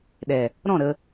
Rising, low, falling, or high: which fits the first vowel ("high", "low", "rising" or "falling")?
low